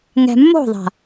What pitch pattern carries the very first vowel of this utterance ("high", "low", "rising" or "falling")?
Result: low